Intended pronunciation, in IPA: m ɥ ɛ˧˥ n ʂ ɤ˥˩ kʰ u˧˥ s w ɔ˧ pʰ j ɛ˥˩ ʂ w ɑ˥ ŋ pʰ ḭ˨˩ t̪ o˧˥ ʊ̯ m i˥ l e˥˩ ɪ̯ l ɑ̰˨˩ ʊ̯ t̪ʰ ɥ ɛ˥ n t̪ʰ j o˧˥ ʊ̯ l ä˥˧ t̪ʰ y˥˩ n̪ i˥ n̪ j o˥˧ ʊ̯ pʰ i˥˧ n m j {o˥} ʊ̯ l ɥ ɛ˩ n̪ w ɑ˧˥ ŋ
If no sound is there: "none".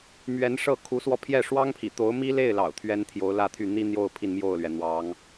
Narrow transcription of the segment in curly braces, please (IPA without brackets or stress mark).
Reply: o˥˩